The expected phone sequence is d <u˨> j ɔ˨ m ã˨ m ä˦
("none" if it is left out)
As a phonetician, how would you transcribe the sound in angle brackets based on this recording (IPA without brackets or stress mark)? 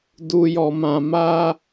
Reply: u˨